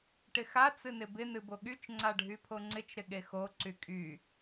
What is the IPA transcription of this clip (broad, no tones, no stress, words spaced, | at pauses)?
ʈɪxa t͡sɨnɪbɪ nɨboɠyt͡ʃ ŋ͡ǀaɖʱypʰoŋ͡ǀɪt͡ʃ ɾɪɠexo ǀykʼy